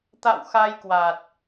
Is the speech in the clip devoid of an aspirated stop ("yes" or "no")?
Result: yes